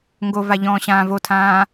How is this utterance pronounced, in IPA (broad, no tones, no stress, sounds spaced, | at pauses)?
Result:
ŋ ɡ o v a ʎ ɔ̃ː ɕ ãː v o tʰ ãː